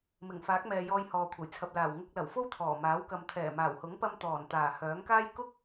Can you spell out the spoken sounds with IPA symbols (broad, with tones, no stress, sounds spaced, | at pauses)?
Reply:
m ɪ˨˩ ŋ f aː˨˥ k̚ m ɛː˨ j ɔː˧ j h ɔː˨ kʷʰ ɐ˨˩ j t͡sʰ ɐ˨ p̚ l aː˨˩ w ŋ ʊ˧ k̚ l ɐ˨˩ w f o˥ w t̪ʰ ɔː˨˩ m aː˨˥ w k ɐ˨ m t̪ʰ ɛː˨˩ m aː˨˩ w h ʊ˨˥ ŋ p ɐ˧ m t̪ ɔː˨˩ n t̪ aː˨˩ h œː˨˥ ŋ k aː˥ j k ʊ˥ k̚